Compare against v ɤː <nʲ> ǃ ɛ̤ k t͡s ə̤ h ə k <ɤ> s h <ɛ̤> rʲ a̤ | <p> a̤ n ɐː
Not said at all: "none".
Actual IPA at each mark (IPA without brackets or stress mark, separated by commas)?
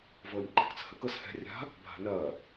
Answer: nʲ, ɤ, ɛ̤, bʱ